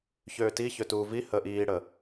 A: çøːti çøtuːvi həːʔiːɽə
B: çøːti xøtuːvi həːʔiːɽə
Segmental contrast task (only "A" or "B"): A